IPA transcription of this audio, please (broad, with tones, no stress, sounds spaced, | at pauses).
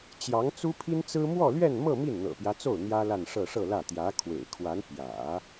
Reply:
t͡ɕ j ɑ˧˥ ŋ t͡s u˥ pʰ i˥ n t͡s ɹ̩˥ m w ɔ˥˧ l ɥ ɛ˥˧ n m ɤ˥˧ m i˥˩ n n̪ ɤ̰˨˩ p j ä˦ t͡s o˥˩ ʊ̯ n̪ j ä˥ l a˥˧ n ʂ ɤ˥˧ ʂ ɤ˥˧ l ä˥˩ t̪ j ä˧˥ kʰ w ḛ˨˩ ɪ̯ kʰ w a˧˥ n p j ä̰˨˩˦